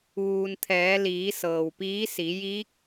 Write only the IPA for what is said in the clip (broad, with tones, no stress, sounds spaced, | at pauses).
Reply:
ʋ uː˩ n t̪ʰ ɛː˩˧ l iː˩˧ s ɤː˩ w p iː˧˥ s i˩˧ j i˧˥ k̚